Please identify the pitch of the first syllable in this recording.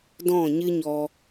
falling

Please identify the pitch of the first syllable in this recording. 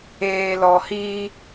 low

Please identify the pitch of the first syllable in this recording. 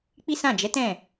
high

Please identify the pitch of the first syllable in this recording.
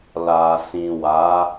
low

